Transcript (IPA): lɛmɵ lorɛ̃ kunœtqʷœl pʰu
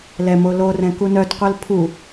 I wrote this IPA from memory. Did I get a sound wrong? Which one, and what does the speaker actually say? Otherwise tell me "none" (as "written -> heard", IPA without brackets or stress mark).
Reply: ɵ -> o